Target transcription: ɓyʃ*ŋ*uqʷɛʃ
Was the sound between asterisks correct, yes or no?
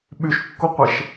no